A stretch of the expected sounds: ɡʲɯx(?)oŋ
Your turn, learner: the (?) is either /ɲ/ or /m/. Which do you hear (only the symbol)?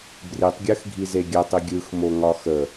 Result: m